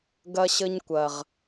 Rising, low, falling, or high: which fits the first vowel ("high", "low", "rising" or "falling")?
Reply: high